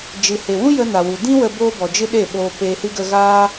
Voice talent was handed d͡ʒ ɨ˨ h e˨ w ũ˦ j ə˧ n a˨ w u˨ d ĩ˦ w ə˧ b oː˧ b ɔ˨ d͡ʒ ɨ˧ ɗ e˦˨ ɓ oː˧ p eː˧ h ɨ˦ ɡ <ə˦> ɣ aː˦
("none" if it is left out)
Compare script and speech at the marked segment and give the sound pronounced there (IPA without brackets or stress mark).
ə˦